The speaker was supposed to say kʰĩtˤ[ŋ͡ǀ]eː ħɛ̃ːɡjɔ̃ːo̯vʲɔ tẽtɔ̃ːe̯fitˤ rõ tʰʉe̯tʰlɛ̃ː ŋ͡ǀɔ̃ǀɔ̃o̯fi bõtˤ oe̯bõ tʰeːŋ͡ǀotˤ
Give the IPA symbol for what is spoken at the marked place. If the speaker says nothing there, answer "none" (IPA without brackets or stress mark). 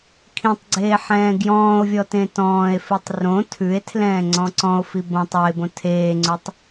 ɡ͡ǀ